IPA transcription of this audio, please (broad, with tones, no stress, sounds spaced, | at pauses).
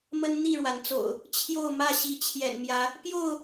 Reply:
m ə˦ n n̪ i˥˨ ɻ w a˩ n t͡s o̰˨˩ ʊ̯ | t͡ɕʰ j o˥˨ ʊ̯ m ä˥˨ ɕ i˨˦ t͡ɕʰ j ɛ̰˨˩ n m j ä˨˦ | p j o˥˨ ʊ̯